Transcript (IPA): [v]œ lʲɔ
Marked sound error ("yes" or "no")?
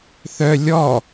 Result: yes